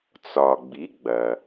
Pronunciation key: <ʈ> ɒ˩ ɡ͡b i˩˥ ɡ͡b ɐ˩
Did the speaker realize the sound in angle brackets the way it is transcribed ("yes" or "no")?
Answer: no